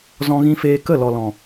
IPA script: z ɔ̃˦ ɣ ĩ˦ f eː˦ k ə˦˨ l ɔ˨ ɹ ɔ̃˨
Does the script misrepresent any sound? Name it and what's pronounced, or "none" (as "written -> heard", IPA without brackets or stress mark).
ɹ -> l